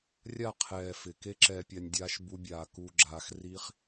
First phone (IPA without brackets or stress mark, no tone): rʲ